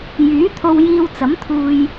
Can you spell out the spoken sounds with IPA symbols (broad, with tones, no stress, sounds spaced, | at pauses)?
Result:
j yː˨˥ t̪ʰ o˧ w j iː˧ w t͡s ɐ˨˥ m t̪ʰ uː˧ j